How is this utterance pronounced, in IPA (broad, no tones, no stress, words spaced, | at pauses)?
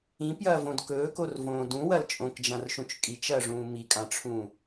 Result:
ĩpjɐːvõd kɵːkorvõː dũwɐl t͡ʃʼõkd͡ʒãrʃũt͡ʃ kʼit͡ʃɐːʐũː mikʼãʈ͡ʂʰũː